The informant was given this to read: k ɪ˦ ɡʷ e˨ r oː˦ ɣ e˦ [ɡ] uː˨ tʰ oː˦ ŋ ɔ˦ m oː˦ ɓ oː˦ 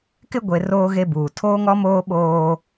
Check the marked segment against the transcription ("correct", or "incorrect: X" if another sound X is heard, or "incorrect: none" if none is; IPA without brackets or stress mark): incorrect: b